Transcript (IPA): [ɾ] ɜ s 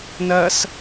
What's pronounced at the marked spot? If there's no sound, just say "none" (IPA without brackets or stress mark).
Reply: n